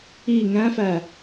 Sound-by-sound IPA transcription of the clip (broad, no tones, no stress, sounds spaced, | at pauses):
i ŋ æ̃ f æ